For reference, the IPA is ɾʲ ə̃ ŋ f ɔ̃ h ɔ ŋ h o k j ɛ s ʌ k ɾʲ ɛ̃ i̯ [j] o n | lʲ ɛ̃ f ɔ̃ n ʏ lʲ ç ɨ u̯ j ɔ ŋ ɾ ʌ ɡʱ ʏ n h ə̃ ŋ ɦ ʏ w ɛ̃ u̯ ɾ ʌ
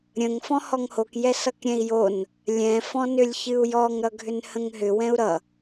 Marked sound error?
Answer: no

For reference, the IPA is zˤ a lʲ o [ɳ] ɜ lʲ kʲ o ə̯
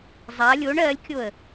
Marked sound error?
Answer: no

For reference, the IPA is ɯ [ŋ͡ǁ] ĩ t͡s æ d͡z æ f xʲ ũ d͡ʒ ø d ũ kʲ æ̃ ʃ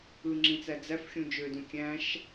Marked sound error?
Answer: no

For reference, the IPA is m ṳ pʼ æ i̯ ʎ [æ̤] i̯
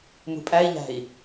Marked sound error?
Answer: no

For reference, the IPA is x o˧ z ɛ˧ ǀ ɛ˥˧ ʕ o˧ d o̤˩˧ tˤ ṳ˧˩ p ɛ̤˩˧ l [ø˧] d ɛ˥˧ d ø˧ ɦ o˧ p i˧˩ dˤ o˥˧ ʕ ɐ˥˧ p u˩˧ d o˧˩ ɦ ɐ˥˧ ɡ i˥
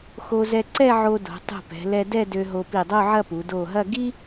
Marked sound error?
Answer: yes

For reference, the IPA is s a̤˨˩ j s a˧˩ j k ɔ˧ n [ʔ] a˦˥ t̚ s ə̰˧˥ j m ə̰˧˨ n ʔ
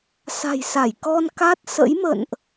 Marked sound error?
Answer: yes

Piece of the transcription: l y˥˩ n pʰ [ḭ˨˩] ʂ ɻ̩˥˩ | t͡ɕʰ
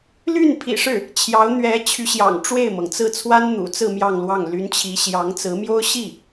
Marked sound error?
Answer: no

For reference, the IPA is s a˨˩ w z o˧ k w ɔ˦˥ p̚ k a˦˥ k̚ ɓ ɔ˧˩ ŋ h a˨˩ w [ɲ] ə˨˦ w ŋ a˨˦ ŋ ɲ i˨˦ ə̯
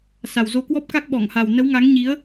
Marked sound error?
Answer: yes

